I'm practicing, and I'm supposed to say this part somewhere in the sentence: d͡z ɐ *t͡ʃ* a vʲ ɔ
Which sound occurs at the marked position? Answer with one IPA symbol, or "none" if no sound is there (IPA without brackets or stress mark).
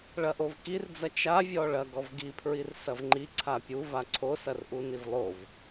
t͡ʃ